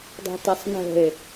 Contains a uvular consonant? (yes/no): no